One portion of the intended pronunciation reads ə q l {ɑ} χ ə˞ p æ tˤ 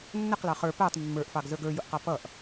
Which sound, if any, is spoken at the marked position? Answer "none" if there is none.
ɑ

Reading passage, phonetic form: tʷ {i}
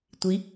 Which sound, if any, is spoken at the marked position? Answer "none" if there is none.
i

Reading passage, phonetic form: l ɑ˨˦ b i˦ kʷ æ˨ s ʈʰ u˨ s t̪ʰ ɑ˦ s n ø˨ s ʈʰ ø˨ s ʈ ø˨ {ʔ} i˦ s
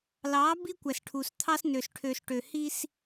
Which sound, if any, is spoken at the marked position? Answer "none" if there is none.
h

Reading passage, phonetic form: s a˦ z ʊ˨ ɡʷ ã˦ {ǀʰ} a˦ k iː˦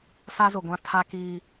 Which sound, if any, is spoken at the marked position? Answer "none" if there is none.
tʰ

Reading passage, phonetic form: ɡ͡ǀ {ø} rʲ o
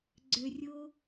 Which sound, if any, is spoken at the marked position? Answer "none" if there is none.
ø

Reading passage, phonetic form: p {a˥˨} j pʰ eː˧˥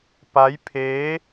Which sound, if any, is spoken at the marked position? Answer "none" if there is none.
a˧˥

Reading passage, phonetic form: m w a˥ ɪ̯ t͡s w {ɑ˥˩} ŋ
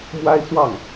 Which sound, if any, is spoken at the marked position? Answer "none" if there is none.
ɑ˥˩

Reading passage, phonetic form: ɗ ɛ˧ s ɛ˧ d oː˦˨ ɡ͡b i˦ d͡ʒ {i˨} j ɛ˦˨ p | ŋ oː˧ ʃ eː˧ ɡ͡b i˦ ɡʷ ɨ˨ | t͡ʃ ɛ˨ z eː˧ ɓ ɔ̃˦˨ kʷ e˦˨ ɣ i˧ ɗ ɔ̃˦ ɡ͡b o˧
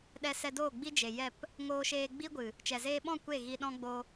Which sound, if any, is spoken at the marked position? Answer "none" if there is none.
e˨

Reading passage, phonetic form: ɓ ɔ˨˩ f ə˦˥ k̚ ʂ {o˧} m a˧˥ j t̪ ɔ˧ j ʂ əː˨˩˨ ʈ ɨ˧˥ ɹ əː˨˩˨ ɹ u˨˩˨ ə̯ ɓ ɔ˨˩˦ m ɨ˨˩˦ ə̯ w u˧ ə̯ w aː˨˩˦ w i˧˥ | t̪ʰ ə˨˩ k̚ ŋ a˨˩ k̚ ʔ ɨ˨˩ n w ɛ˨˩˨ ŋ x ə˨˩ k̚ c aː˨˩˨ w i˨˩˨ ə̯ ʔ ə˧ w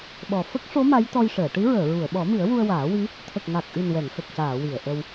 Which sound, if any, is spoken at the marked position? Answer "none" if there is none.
o˧˥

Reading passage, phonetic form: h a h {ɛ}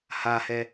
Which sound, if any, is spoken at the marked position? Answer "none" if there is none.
ɛ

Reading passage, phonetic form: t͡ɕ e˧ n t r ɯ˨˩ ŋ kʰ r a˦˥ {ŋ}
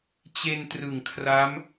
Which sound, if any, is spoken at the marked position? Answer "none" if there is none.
m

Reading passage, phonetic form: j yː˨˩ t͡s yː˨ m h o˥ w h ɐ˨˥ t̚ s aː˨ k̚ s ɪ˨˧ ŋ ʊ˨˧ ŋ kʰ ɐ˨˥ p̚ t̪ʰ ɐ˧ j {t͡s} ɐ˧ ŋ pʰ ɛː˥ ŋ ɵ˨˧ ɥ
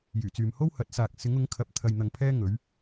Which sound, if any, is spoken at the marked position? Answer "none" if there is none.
n̪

